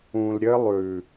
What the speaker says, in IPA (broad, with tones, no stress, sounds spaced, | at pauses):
ũ˨ l ɾʲ ɘ˦ lˠ ʉ˨